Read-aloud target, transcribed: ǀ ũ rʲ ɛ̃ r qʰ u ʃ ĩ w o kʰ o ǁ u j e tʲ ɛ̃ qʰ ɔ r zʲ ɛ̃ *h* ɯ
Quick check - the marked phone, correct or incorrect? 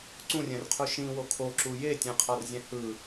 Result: correct